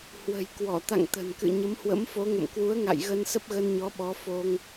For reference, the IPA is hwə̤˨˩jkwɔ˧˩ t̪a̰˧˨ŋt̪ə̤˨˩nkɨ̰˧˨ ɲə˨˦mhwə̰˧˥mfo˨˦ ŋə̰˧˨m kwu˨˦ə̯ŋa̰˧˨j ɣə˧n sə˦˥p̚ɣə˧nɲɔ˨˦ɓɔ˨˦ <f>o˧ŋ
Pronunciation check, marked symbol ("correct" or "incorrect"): correct